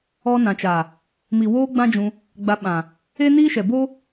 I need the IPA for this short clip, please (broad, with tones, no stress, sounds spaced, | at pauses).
ɔ˧ n ã˨ t͡ʃ a˨ | m i˨ w oː˧ ɡ͡b ã˦ d͡ʒ ũ˧ | ɡ͡b a˧ ɓ ã˨ | e˦ n iː˦ ʃ ɛ˨ b o˦